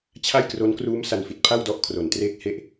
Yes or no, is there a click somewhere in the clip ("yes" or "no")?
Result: no